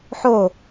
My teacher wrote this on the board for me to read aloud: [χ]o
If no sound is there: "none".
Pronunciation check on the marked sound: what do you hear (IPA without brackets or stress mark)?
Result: ħ